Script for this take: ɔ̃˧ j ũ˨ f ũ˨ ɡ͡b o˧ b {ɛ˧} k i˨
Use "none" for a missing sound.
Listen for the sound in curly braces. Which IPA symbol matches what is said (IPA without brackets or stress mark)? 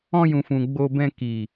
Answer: ɛ̃˧